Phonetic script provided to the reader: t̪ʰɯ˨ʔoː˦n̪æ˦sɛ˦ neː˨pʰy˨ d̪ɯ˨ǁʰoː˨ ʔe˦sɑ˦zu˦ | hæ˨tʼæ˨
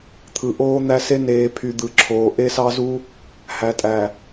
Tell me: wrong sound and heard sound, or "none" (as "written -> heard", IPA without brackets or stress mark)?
ɛ˦ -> e˦